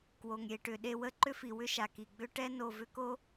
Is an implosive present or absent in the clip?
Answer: present